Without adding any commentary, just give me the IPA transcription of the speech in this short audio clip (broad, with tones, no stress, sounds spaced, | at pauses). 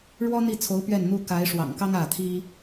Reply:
ɻ w ɔ˥ n̪ i˥˩ t͡sʰ o˧˥ ʊ̯ p ɥ ɛ˥˩ n n̪ u˥ k a˧˥ ɪ̯ ʂ w ɑ̰˨˩ ŋ k ɑ˥ ŋ ä˥˩ t̪ʰ i˥